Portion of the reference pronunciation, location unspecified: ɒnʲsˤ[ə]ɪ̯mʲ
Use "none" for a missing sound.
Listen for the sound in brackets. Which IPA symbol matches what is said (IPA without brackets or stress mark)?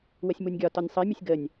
ə